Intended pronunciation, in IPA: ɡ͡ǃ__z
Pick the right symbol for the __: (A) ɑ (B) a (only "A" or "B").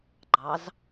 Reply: A